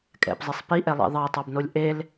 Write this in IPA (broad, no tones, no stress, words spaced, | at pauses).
kʼɛ̰pzˤesˤ piʔɛlˠḛ ðˤɑtˤɑbnolʲ ʔel